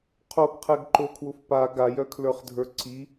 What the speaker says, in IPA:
qʰ o ɡ qʰ ɛ ɡ ǃ o kʰ w ʊ f p a ɡ a j œ kʰ l ə˞ χ dʱ ə˞ ǀ i

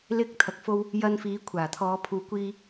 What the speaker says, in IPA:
l ɪ˨ k̚ t̪ʰ ɐ˨ k̚ f o˧ w | j ɐ˧ n f iː˨˥ kʷʰ aː˨˩ t̪ʰ ɔː˨˧ pʰ uː˨ kʷ iː˧

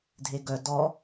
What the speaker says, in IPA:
dʱ e ɡ œ d ɔ

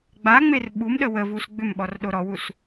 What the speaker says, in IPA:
ɡ͡b a ŋ͡m e r ɓ u m ɗ ə w ə v u s ɡ͡b ʏ m ɓ ɔ r ɗ o ɾ ɔ w u s

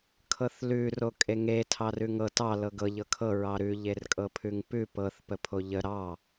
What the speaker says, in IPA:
kʰ ɤ θ l ʉ r o kʼ e ŋ e tʰ ɑ r ʉ ŋ ɤ t ɑ l ɤ ɡ ɤ ʎ ɤ kʰ ɤ ɹ ɑ ɾ ʉ ʎ e r kʼ ɤ pʰ ʉ ŋ p ʉ p ɤ θ p ə pʰ o ʎ ə ɾ ɑ

